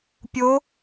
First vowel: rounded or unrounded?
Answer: rounded